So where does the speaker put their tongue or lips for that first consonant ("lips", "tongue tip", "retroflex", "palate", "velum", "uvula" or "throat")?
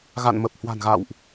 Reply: velum